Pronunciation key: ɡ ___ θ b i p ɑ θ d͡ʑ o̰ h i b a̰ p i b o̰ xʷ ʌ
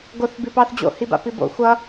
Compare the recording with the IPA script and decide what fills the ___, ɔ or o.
o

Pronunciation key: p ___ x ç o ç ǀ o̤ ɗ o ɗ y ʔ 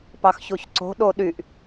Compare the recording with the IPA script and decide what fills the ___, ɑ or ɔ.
ɑ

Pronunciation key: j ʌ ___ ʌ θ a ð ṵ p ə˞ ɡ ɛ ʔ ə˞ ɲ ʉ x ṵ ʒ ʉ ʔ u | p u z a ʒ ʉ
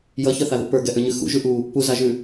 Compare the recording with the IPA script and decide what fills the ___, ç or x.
ç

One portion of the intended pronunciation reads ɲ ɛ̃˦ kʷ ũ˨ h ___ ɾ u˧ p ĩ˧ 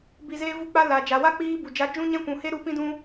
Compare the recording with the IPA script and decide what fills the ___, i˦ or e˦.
e˦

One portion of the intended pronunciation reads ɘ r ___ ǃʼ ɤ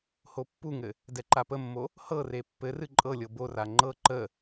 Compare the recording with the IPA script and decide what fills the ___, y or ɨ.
ɨ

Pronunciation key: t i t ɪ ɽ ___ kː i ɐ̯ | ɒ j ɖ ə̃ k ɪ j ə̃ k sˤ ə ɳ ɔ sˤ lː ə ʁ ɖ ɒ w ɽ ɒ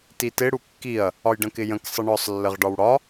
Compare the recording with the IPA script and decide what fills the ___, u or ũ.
u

